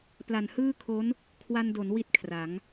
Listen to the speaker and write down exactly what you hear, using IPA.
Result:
p l a˨˩ n h ɯː˥˩ kʰ o˦˥ n | kʰ w a˧ n d o˩˦ n w i˥˩ t̚ kʰ r a˩˦ ŋ

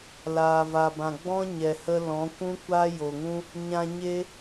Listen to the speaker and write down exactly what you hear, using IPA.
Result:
l aː˨ v a˨ b ã˨ ɡ͡b ɔ̃˦ ɲ ɛ˨ h ə˦ l ɔ̃˨˦ kʷ ũ˦ kʷ a˦ j o˨ ŋ ũ˦ | ɲ ã˧ ɲ e˦

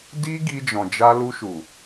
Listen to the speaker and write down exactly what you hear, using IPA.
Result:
d i˦ ɡ i˧ d͡ʒ ɔ̃˨ d͡ʒ a˧ l u˧ ʃ u˨

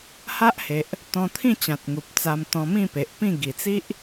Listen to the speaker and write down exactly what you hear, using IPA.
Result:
h a˦ ʔ h e˨ ʔ | t̪ ɔ̃˧ t̪ʰ ĩ˥˧ t͡ɕ ã˨ t̚ ŋ u˨ p̚ t͡s a˧ m t̪ ɔ̃˧ m ĩ˥˧ p e˨ ʔ p ĩ˥˧ ɡ i˨˩ t͡s i˦ ʔ

